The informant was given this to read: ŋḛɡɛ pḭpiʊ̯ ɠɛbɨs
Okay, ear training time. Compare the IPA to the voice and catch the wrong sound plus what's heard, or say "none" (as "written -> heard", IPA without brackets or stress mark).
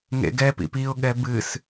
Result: none